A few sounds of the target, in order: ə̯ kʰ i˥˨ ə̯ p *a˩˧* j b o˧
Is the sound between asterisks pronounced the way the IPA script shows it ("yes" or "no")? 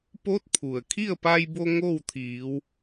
no